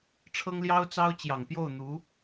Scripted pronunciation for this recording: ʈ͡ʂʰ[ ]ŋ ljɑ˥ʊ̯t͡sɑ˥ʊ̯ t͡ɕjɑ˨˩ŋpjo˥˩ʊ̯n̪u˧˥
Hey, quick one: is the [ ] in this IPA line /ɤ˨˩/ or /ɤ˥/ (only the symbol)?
ɤ˥